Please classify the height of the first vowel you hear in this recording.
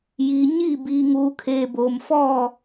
high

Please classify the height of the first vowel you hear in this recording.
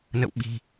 mid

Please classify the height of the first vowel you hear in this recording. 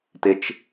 high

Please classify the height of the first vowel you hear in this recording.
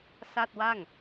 low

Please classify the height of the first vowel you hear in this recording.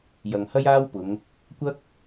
low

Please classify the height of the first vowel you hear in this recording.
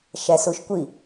low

